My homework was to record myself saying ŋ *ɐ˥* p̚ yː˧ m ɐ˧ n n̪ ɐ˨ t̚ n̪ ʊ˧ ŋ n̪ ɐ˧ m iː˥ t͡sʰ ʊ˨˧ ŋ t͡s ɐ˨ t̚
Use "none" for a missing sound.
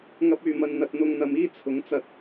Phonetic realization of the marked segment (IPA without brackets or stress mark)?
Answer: ɐ˥